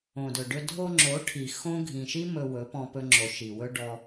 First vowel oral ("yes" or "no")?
no